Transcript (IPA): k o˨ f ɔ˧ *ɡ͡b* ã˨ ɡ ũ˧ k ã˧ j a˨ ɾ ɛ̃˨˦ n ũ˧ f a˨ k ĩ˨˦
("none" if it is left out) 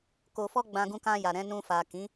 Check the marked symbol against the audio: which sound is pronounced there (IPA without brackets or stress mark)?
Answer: ɡ͡b